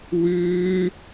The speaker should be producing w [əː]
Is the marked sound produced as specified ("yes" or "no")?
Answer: no